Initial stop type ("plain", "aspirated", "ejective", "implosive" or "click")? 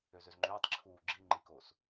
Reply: click